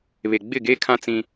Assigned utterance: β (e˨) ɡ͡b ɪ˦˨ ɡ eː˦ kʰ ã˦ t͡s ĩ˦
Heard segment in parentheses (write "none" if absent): e˨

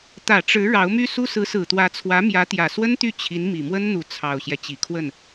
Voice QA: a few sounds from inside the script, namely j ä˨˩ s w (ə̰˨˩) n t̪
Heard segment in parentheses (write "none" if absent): ə˥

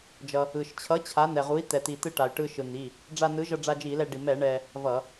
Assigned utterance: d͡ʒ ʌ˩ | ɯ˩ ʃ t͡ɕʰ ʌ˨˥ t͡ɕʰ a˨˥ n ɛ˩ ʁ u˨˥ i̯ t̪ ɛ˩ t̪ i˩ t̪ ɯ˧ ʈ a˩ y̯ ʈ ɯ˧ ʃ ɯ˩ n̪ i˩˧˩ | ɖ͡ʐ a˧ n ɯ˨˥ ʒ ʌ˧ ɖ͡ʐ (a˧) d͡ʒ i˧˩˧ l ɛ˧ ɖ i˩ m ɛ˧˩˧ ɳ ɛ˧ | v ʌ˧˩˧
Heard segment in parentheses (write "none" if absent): a˧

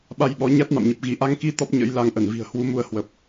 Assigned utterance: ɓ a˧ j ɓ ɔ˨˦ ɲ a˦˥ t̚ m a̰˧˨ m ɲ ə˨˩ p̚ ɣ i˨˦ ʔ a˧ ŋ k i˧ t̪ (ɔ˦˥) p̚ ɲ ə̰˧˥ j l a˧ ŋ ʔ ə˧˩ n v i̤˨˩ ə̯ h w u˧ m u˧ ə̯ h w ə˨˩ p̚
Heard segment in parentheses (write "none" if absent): ɔ˦˥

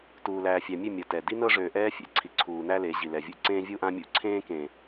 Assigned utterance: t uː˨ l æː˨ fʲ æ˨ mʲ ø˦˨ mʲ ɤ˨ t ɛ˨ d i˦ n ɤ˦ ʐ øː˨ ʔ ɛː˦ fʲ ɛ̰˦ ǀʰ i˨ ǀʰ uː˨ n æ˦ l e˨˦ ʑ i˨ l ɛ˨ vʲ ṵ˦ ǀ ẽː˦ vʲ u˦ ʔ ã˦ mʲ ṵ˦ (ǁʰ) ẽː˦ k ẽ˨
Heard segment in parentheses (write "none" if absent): ǀʰ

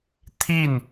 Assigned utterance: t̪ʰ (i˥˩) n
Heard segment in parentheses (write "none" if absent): i˥˩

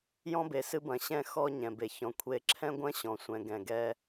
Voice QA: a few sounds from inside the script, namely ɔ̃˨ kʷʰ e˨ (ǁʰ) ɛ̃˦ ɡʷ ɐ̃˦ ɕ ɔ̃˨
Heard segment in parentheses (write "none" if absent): ǁʰ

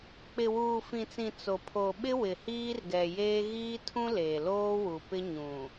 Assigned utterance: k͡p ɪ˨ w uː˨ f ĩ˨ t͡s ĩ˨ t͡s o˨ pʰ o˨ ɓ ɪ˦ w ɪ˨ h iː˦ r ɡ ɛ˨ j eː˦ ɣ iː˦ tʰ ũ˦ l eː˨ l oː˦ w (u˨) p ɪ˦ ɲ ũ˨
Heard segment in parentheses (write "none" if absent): u˨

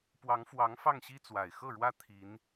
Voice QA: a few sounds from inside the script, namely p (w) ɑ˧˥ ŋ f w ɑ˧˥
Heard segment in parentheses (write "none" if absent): w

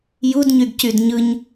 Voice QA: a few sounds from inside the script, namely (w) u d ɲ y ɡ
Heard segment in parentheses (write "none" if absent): j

